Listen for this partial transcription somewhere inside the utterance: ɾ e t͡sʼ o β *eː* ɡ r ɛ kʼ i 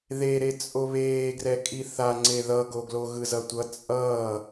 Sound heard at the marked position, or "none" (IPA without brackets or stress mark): eː